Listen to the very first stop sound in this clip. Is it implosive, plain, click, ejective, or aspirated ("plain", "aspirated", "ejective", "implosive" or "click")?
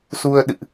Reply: implosive